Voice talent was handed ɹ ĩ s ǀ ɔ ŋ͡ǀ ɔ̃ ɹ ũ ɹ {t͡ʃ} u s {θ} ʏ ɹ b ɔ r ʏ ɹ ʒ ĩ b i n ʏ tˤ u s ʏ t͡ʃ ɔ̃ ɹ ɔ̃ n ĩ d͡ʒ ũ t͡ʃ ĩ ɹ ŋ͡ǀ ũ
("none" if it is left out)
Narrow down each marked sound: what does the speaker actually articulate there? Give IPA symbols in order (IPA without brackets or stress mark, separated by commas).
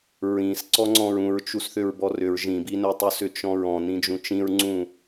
t͡ʃ, θ